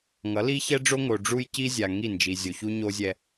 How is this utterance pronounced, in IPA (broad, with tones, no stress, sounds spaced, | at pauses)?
ŋ ʌ˨˦ l i˦ ç ɛ˦ ɖ͡ʐ o˦ ŋ o˨ ɖ͡ʐ u˦ j c i˦ zʲ a˨ ŋ i˦˨ n d͡ʒ i˨ zʲ o˨ ç u˦ ɲ o˦ zʲ ɛ˦